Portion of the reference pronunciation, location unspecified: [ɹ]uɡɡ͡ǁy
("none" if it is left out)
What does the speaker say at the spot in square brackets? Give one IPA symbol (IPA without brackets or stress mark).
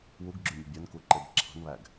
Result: w